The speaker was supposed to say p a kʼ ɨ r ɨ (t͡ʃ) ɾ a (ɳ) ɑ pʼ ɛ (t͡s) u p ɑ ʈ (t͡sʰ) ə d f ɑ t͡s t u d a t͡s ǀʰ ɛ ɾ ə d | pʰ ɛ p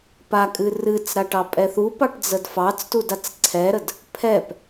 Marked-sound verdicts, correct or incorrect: incorrect: t͡s, incorrect: ʈ, incorrect: θ, incorrect: d͡z

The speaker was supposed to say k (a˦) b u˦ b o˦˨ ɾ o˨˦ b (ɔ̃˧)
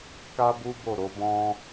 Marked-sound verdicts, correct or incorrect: correct, incorrect: ɔ̃˦

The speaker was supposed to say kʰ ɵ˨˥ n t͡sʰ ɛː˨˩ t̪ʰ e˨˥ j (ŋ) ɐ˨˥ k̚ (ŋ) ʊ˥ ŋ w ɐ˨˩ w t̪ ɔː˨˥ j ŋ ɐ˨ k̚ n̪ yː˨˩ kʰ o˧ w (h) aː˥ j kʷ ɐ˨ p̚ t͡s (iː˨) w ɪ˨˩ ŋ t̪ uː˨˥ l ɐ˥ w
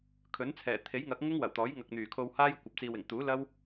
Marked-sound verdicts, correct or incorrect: correct, correct, correct, correct

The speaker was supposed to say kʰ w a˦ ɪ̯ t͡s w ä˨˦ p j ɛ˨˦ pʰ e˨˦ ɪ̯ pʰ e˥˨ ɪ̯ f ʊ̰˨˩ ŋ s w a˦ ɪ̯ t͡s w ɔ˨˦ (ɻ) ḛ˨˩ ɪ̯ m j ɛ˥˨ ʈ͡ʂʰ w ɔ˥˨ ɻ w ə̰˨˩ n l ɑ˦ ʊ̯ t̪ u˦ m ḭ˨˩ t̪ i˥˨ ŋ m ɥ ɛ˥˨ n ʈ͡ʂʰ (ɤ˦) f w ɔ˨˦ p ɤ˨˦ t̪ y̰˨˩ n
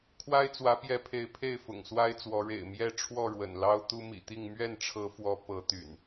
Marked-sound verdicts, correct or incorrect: correct, incorrect: ɤ˨˦

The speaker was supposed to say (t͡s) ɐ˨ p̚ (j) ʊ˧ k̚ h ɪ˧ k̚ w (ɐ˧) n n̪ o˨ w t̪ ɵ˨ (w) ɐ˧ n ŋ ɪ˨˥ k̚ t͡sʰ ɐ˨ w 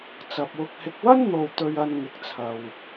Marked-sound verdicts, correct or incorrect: correct, incorrect: w, incorrect: ɐ˥, incorrect: ɥ

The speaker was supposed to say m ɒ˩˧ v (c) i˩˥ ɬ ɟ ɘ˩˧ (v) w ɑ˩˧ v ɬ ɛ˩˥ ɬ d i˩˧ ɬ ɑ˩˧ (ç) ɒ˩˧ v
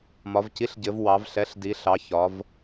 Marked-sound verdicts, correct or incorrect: correct, correct, correct

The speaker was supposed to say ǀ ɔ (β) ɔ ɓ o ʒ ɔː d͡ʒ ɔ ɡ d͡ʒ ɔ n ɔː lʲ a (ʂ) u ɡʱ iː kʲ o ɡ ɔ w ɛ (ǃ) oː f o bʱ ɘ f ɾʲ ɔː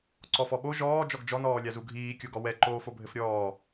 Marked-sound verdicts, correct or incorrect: incorrect: f, incorrect: z, correct

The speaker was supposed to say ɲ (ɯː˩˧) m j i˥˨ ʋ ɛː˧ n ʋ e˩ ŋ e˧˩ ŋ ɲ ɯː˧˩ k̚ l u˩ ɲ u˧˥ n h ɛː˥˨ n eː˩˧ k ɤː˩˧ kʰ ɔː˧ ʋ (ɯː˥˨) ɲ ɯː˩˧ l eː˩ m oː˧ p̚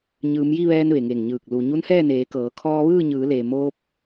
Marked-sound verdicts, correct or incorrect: correct, correct

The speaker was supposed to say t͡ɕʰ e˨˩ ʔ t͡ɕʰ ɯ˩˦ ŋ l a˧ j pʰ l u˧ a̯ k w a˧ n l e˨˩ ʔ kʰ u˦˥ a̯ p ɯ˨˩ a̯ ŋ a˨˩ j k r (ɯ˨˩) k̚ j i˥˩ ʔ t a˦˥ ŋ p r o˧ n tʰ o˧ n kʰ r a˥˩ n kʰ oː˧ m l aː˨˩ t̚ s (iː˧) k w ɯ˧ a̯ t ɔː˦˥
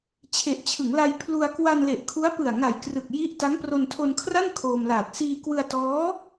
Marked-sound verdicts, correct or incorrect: correct, correct

